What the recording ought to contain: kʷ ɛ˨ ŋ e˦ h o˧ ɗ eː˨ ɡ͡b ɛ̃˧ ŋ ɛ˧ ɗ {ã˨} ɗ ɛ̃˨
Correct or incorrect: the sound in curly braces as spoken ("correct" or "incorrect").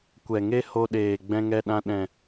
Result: incorrect